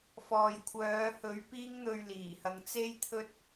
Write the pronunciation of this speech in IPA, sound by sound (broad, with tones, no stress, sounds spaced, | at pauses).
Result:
f ɔː˨ j kʷʰ œː˨˧ h ɵ˨˥ ɥ p iː˧ ŋ n̪ ɵ˨ ɥ l iː˨˩ h ɐ˨˧ ŋ t͡s e˥ j t̪ʰ ɵ˥ t̚